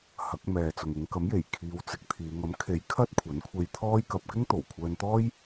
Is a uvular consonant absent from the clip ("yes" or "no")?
yes